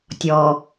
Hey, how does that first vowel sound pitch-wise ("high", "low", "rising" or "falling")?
low